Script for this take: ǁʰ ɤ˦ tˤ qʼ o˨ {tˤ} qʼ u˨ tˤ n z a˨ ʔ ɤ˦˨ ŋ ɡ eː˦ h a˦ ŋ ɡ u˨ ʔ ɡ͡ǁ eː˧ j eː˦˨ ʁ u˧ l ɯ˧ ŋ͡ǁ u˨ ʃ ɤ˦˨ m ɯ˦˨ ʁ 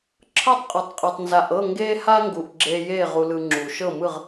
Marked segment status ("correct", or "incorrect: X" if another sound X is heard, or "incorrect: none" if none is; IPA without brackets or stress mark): correct